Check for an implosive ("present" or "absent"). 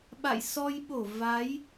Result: present